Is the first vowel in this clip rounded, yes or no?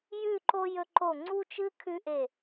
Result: yes